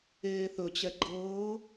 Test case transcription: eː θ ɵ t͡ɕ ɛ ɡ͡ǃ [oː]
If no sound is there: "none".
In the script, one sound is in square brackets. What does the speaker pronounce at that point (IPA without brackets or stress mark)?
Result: ɤː